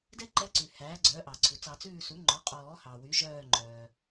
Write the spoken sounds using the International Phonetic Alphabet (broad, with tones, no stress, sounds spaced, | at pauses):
d ɛ˥ ǃ ɛ˧˥ ǀ ʉ˩ h æː˩˥ ɡ͡ǀ œː˩˥ ʔ ɑ˩ ǀʰ u˩ t͡s ɑ˨˩˦ t͡s ʉː˦˨ s u˩˥ ŋ͡ǃ ɔ˩˥ qʼ ɔː˨˩˦ h ɑ˩ w y˩˥ ʒ œː˦˨ ŋ͡ǃ œː˩